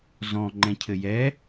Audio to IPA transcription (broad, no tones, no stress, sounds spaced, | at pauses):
z ɔ̃ ŋ͡ǃ ɛ̃ cʰ ɘ j ɛ